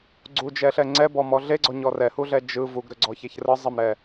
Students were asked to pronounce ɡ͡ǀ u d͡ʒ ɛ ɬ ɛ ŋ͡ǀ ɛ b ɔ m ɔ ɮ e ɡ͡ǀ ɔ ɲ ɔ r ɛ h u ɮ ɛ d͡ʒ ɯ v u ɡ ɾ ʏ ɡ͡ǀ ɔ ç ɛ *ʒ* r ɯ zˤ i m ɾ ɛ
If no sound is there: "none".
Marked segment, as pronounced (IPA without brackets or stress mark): ç